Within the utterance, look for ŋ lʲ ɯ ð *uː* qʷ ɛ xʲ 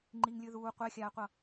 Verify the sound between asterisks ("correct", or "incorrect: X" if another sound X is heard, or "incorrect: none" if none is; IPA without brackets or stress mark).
correct